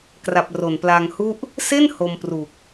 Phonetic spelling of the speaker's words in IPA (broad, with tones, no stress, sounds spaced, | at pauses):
k r a˨˩ p̚ r o˨˩ n p l a˧ ŋ h u˥˩ ʔ | s e˥˩ n h o˧ m p r u˨˩ k̚